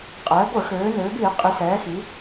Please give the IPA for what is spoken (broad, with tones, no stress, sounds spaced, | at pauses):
qʼ ɛː˩˧ ɡʷ ə˞˧˩˧ x øː˩˧ n øː˩˧ b iː˧˩˧ qʼ i˩˧ s ɛː˩˧ x i˩˧